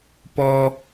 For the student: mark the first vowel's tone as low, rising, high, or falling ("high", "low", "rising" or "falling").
high